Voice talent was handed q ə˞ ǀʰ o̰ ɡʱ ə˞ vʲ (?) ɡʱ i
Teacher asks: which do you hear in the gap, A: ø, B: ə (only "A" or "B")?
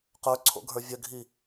B